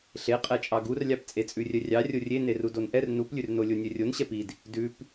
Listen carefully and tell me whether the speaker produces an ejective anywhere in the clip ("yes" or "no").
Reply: yes